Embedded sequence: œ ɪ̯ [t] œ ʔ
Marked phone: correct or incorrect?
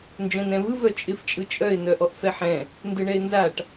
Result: incorrect